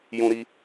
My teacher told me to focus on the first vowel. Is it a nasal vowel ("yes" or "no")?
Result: yes